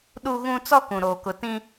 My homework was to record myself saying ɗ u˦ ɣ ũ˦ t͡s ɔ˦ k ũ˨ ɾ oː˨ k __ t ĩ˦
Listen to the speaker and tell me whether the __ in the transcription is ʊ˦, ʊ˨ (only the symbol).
ʊ˨